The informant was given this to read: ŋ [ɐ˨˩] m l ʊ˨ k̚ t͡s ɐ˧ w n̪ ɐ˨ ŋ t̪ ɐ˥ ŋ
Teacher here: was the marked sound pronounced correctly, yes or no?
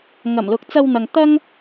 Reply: yes